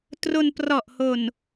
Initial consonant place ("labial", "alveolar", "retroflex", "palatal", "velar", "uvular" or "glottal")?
alveolar